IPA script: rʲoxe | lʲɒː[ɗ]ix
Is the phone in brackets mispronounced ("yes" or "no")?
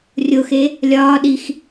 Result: no